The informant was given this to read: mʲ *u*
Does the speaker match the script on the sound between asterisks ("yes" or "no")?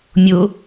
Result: no